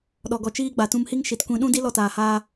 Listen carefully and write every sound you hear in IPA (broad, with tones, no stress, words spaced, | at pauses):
ɗɔ˨ɡɔ˨t͡ʃiː˧ ɡ͡ba˨ tũ˧mhi˦ŋ ʃi˨tkʷĩ˨˦ɗũ˦di˦ lɔ˧taː˨haː˧